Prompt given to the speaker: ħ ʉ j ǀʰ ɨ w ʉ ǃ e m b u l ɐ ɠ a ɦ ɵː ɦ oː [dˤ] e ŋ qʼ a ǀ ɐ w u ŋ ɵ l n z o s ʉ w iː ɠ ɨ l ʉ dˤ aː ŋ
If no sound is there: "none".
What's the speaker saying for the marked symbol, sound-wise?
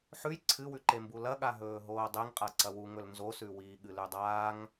dˤ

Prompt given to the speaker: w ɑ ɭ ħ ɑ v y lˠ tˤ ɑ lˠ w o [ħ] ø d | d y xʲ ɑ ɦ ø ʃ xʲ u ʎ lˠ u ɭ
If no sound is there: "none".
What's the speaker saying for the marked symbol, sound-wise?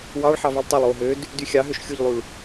ɦ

